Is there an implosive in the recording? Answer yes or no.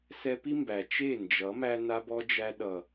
yes